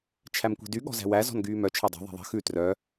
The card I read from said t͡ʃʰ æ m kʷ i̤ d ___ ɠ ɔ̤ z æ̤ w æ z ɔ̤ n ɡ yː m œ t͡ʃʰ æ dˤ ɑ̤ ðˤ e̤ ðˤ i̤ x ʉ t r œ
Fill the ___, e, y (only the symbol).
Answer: y